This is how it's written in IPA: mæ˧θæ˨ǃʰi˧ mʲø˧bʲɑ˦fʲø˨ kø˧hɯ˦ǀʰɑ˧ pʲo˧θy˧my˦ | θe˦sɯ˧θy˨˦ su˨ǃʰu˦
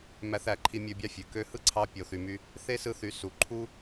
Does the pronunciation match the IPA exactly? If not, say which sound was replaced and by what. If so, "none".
none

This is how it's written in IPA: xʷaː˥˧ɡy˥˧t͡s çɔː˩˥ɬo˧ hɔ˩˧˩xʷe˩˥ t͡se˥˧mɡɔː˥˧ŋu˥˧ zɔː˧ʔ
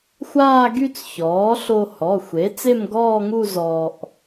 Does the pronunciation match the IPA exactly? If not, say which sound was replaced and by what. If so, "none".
none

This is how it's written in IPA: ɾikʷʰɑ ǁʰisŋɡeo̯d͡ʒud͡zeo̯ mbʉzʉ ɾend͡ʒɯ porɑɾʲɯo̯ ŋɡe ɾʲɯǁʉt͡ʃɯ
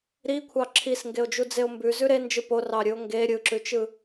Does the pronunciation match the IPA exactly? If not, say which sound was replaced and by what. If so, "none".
none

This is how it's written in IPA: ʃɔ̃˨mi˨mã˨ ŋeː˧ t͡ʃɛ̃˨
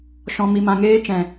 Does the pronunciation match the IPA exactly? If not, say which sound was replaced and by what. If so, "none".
none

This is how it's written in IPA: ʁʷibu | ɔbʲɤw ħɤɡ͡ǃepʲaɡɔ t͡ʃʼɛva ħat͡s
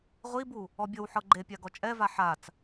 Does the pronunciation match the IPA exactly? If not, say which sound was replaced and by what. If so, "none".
none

